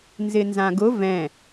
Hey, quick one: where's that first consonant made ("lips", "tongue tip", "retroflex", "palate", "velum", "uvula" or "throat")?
tongue tip